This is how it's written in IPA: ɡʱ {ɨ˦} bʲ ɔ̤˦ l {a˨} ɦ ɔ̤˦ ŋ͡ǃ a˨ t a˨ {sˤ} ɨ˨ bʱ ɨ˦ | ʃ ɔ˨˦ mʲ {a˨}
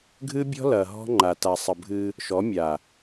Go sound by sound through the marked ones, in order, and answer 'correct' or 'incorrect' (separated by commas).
correct, incorrect, correct, correct